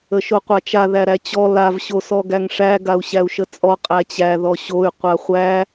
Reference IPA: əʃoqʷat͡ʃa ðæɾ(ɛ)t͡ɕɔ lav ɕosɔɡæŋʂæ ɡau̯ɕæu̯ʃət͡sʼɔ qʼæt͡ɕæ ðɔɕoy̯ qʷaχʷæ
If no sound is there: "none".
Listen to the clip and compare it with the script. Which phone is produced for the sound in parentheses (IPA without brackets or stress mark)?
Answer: æ